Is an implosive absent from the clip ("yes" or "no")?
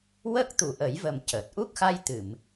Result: yes